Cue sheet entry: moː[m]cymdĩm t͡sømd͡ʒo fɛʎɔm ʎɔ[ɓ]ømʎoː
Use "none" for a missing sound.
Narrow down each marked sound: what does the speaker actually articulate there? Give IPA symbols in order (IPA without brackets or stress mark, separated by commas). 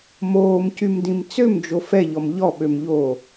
m, ɓ